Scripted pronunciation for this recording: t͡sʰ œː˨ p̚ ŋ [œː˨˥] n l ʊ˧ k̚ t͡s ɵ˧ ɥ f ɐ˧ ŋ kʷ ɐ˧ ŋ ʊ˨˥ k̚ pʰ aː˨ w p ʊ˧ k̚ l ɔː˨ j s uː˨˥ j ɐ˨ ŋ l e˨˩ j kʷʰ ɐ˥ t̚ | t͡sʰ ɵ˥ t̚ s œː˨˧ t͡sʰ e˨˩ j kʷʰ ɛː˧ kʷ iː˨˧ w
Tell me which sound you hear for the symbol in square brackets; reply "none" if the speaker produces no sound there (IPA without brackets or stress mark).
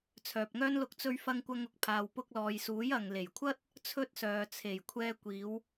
œː˥